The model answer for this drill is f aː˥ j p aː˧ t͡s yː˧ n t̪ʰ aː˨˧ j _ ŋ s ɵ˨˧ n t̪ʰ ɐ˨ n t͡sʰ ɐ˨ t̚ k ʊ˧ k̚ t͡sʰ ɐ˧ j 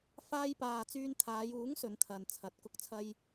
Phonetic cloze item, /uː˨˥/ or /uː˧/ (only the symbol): uː˨˥